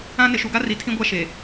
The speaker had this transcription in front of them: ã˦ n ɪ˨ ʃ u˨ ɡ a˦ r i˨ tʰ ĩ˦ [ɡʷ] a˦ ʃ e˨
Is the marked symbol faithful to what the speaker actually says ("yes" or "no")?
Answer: yes